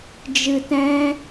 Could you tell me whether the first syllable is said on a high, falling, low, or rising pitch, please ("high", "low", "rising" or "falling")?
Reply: low